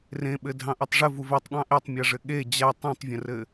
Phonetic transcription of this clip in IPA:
r ẽ ɓ ɘ dʱ ɑ̃ ʔ u tˤ ʐ ɘ v u v ɛ tˤ ɠ ɑ̃ ʔ e tˤ mʲ a ʐ ɘ ɠ e d͡ʑ a tˤ ũ tˤ vʲ ə̃ r ɘ

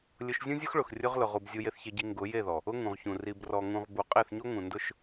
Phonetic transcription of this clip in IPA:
lʲ ʊ˧ ʃ zʲ ũ˦ zʲ ʊ˦ x ɭ ʊ˨ x rʲ ʊ˧ ʁ l ʊ˨ ʁ u˨ b zʲ u˧ j e˧ θ ç e˧ ɟ i˧ ŋ ɡ ʊ˨˦ j e˦˨ ð ɔ˨ | ʊ˦ ŋ ũ˨ ʁ ç ũ˨ r i˨ b r ɔ˨ ŋ ũ˨ ʁ b u˨ qʼ e˦˨ θ ɲ o˦ ŋ ũ˨ n d ʊ˦˨ ʃ

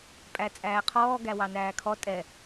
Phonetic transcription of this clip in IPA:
pʼ æ t͡sʼ æː qʰ ɔː ɡ æ w ɑ n æː kʰ ɔ tʼ ɛ

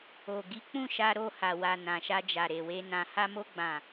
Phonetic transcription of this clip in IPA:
o˨ ɡ i˨˦ k͡p ũ˦˨ ʃ a˧ ɾ o˧ h a˨ w a˨ n ã˨ ʃ a˧ d͡ʒ a˨ ɾ e˨ w e˧ n ã˨ h a˧ m o˧ ɡ͡b ã˨

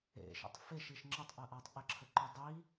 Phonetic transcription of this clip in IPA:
ḛ ʃ ə̰ tˤ f e ʃ i ʃ ŋ͡ǁ ə tˤ ʔ ɐ ʔ a tˤ ʔ ə ǁʰ ə ǃ œ dˤ i

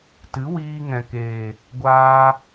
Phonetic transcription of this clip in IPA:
t ɨ˨˦ w iː˧ ŋ ɛ̃˨ k eː˨ | ɡʷ aː˧

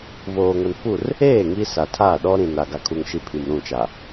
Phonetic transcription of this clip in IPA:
v oː˨ ŋ o˨ n f u˦˨ r | eː˦˨ ŋ i˦ s a˨ tʰ a˦˨ ɗ ɔ˦ ɾ ĩ˨ n a˨ ɡ a˨ kʰ u˨ ŋ ʃ i˨ pʰ i˨ m ɾ ũ˦˨ t͡ʃ a˨

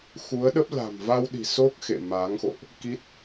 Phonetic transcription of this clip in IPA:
x u˨˦ ə̯ ɗ ə˦˥ p̚ l a̤˨˩ m v a˧ w ɗ i̤˨˩ s o˦˥ k̚ x ḛ˧˨ m a˨˦ ŋ x o̰˧˨ ʔ | k i˦˥ t̚

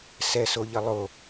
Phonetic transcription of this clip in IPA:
s ɛ s o ʎ ə lˠ o

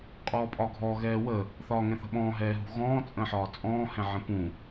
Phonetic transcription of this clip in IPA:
qʼ ɔː pʼ ɒ ɡʱ ɔ ɣ ɛː w ə | θ ɒː ŋ ɛ̃ θ ə̤ ɓ ɔ̃ː ɦ ɛː ɦ ṳ ɣ ɔ̃ː t͡sʼ ə̃ ħ ɒː t͡sʼ ɔ̃ː h ɛ̃ ʕ ə̃ p ũ

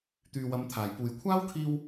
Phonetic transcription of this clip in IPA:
t̪ yː˨ w ɐ˨˧ m t̪ʰ aː˨˩ j p uː˨˩ j kʷʰ aː˥ w kʰ iː˧ w

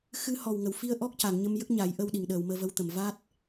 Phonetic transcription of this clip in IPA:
x ɨ˧˥ h ɔ˨˩ w ŋ ə˨˩˨ w f i˧ ə̯ ʔ ɔ˦˥ k̚ c a˨˩˨ ŋ ɲ ə˧ m j ə˦˥ k̚ ɲ a˨˩˦ j ʔ ə˧ w ɗ i˨˩˨ ŋ ɗ əː˨˩˨ w m əː˧ v ə˧˥ w t̪ ə˨˩˨ m v a˦˥ t̚

